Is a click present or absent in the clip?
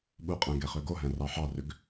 absent